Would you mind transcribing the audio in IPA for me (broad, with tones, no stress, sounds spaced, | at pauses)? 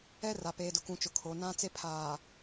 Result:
ɛ˦ r a˨ p eː˨ d ʊ˨ k ũ˨ t͡ʃ ʊ˨ kʰ o˨ n ã˦ t͡s e˦ pʰ aː˨